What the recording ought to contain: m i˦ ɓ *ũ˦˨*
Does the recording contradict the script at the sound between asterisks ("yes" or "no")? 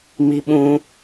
yes